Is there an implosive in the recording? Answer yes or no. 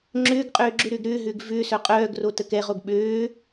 yes